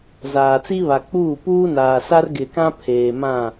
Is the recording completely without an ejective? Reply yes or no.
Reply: yes